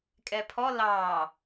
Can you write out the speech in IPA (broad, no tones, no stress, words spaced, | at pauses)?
kʼɛpʰɔ lɑː